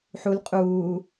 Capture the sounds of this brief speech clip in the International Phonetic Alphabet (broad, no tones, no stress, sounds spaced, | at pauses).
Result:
ħ u l qʼ uː